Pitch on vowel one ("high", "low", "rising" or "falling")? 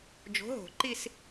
rising